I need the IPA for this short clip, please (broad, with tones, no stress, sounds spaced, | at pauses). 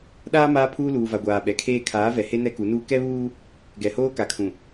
ɗ aː˦ m aː˦ pʰ uː˦ l uː˨ v a˨ ɡʷ aː˨ ɓ ɛ˨ kʰ eː˦ kʰ aː˨˦ v ɛ˨ h e˦ n ɛ˦ k u˨˦ n uː˦ k ɛ˦ β uː˦ | ɡ ɛ˨ h oː˦ k a˨ kʰ ũ˨